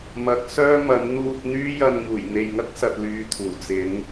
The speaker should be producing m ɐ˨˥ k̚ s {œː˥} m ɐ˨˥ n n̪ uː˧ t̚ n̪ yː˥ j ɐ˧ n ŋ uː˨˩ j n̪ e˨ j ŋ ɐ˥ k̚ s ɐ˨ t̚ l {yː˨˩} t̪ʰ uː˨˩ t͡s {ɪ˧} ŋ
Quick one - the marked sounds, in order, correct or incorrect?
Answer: correct, incorrect, incorrect

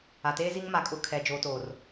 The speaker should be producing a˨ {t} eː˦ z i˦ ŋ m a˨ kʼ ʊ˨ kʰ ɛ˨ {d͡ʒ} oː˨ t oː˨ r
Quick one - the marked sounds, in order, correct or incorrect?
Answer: correct, correct

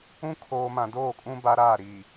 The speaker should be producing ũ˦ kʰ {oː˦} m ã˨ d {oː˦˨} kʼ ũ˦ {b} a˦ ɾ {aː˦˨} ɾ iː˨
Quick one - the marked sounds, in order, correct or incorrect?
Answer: incorrect, correct, correct, correct

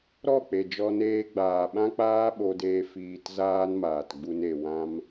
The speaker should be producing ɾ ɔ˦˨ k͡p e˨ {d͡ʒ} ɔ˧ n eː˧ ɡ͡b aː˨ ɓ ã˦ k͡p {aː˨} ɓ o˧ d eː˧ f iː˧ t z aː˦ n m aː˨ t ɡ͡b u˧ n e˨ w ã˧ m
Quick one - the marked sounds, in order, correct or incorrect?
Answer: correct, incorrect

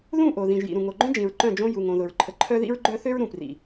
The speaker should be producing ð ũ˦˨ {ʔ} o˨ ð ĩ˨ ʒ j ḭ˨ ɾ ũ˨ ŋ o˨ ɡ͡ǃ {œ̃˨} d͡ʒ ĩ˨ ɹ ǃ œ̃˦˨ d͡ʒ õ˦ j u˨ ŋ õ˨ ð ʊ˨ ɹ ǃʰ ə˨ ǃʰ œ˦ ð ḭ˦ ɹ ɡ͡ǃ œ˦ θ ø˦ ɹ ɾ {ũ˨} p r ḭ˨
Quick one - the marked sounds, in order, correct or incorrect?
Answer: correct, incorrect, correct

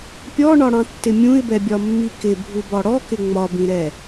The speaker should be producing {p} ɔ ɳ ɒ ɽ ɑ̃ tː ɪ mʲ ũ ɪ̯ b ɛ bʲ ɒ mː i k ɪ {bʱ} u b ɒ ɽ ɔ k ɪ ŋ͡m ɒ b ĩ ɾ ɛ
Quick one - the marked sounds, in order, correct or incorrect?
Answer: incorrect, correct

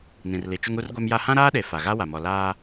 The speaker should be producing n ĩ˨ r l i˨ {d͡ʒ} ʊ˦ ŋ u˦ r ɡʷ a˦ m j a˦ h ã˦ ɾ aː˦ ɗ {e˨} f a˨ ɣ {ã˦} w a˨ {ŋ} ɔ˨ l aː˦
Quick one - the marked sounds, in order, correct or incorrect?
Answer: incorrect, correct, incorrect, incorrect

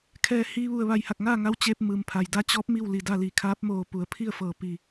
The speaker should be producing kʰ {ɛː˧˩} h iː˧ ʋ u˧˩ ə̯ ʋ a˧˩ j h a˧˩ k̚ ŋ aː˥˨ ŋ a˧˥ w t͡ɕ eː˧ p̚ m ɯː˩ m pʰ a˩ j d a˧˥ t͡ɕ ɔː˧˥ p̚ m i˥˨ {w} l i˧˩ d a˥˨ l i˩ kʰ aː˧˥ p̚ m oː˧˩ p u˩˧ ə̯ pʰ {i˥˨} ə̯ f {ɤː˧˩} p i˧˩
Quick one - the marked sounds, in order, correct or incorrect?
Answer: correct, correct, correct, correct

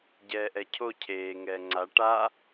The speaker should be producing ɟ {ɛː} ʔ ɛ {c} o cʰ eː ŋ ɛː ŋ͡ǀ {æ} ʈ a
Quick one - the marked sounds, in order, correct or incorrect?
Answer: correct, incorrect, incorrect

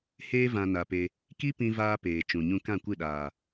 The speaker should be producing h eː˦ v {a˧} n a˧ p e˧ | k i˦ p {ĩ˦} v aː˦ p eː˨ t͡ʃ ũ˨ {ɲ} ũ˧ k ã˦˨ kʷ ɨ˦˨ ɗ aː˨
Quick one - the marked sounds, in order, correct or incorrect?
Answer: incorrect, correct, correct

